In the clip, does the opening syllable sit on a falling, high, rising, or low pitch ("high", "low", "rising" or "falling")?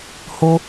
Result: high